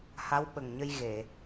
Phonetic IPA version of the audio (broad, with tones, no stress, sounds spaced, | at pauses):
h a˧˥ w ɓ ə˨˩ ŋ ɲ ə˧ j ɣ e˨˩˨